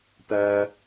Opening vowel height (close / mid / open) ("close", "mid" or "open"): open